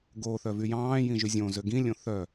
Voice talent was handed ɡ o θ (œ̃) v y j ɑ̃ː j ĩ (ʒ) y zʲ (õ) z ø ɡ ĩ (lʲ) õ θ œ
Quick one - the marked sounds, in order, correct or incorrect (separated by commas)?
incorrect, correct, correct, correct